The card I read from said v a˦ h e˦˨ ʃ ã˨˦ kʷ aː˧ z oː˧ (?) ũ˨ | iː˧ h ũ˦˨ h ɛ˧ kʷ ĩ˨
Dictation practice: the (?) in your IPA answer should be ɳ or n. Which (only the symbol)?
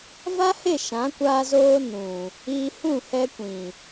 n